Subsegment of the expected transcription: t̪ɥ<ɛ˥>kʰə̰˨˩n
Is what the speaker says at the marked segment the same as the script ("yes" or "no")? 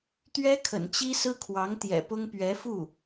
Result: yes